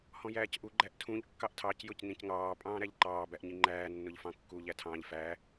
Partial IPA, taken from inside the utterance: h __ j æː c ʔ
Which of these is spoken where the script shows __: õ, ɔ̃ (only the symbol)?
ɔ̃